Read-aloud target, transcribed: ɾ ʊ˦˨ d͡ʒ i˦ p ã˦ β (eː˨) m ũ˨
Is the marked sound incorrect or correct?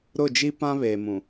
correct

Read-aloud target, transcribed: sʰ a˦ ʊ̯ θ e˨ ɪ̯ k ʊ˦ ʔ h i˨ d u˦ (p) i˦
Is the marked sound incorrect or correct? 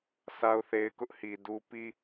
correct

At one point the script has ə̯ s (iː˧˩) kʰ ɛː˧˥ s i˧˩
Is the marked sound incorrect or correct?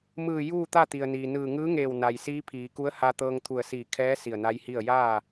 correct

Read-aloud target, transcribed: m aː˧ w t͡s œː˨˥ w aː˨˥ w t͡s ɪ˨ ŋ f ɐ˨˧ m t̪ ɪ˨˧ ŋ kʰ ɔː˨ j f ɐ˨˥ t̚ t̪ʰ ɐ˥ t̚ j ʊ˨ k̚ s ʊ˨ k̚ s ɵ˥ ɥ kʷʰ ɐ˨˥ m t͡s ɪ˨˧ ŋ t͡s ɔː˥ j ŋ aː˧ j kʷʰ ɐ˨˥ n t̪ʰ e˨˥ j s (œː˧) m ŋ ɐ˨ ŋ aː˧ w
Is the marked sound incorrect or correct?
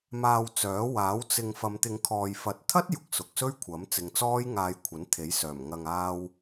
incorrect: œː˨˩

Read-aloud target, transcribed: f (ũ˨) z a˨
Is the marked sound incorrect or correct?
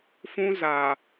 incorrect: ũ˦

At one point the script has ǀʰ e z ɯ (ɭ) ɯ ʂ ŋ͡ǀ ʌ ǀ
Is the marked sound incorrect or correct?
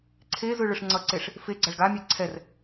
correct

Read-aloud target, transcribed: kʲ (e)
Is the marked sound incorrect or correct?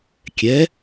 incorrect: ɛ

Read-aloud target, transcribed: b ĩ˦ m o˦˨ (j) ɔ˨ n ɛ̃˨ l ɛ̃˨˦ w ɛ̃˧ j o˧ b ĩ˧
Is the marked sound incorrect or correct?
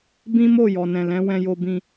correct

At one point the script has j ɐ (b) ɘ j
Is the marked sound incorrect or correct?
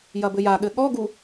correct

